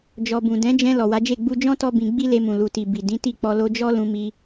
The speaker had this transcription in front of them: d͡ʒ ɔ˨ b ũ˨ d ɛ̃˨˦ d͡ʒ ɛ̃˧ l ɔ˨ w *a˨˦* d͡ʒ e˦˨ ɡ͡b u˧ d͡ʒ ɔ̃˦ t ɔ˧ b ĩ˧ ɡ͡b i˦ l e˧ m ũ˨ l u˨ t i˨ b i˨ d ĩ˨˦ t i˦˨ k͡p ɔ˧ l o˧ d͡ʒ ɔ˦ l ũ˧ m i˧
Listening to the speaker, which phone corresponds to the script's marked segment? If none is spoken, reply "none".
a˨˦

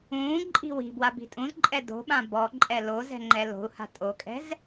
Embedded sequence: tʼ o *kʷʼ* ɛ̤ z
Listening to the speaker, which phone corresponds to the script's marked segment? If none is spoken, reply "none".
kʼ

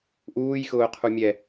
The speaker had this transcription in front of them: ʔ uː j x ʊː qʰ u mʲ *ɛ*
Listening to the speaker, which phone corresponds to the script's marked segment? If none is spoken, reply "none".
ɛ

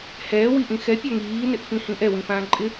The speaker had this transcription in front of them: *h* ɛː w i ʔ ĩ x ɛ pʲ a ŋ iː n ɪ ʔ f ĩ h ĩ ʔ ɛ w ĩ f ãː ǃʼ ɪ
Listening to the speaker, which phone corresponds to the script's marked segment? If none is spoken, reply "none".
h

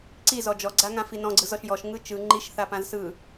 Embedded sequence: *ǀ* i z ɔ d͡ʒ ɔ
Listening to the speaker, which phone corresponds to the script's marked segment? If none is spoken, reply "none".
ǀ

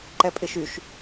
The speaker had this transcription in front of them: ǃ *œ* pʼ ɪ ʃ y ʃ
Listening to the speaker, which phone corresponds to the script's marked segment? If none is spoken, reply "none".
ɛ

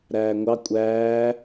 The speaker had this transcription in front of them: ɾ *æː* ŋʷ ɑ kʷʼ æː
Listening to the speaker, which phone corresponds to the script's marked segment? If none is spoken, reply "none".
æː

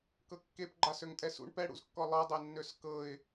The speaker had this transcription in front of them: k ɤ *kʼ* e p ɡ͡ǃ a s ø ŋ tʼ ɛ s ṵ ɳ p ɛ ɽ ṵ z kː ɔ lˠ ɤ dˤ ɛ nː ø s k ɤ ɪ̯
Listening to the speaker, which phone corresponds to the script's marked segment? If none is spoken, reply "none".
kː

